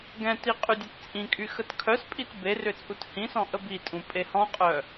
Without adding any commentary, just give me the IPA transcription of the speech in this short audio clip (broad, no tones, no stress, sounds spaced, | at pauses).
ɡ ɛ̃ t i qʼ y dʲ ø t t͡sʼ ĩ kʼ y x ə t kʰ œ s pʼ i t b e r ʏ t͡sʼ u t h ĩ s ɔ̃ ʔ ə b i tʼ ũ pʼ e h ɔ̃ qʼ œ